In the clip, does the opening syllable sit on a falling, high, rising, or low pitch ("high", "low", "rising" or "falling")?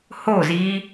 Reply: falling